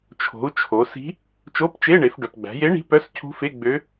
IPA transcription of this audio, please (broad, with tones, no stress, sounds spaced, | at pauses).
t͡ʃʰ o̤˩˧ u̯ t͡ʃʰ o˩˧ s i̤˧˥ | t͡ʃ o˧˥˧ p t͡ʃ e˧˥˧ ɳ e˩˧ f ɖ œ˩ p ɡ͡b æ̤˩˧ j e˧˥ ɳ i̤˧˥ p œ˧˥˧ s cʰ ṳ˧˥ f e˧˥˧ ɡ͡b ø˧˥